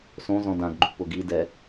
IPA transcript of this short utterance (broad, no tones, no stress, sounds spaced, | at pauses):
s õ z ɔ̃ d ã ɡ ɡ͡ǃ ṳ p ʊ ɡ i d ɛ